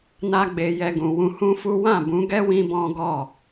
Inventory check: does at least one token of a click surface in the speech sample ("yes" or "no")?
no